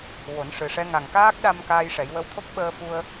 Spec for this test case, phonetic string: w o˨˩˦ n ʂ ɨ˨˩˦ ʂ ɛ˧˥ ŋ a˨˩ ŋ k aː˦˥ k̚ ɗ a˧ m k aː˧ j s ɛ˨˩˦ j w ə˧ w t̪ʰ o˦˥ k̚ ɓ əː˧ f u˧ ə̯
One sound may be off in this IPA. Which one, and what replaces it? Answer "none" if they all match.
s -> ʂ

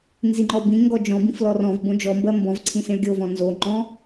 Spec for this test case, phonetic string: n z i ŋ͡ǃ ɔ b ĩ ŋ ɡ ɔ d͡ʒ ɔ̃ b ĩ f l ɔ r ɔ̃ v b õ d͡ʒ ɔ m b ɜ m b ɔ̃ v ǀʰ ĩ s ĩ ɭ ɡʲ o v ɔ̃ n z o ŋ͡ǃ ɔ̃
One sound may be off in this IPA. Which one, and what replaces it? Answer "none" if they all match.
none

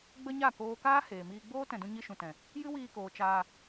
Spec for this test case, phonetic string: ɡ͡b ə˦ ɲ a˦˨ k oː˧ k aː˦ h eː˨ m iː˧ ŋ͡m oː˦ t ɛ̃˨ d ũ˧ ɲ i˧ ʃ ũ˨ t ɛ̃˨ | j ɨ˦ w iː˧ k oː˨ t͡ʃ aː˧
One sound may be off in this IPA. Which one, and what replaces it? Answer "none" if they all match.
ŋ͡m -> ɡ͡b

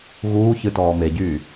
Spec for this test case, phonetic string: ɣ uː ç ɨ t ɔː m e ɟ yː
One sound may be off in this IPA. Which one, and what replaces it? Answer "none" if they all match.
none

